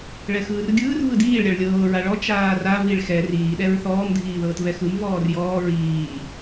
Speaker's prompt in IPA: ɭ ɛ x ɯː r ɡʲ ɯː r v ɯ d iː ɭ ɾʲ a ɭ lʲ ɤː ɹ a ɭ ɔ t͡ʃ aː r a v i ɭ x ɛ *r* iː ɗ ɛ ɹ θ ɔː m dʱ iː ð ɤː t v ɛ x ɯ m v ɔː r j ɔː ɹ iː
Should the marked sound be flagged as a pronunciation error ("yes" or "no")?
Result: no